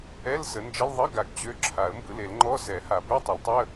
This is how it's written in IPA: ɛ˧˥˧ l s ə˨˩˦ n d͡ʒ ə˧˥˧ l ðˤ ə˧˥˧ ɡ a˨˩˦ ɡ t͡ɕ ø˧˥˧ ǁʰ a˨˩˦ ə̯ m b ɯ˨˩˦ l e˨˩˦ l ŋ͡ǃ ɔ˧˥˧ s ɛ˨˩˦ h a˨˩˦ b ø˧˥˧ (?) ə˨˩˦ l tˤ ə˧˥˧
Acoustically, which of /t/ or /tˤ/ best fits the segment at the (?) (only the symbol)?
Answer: tˤ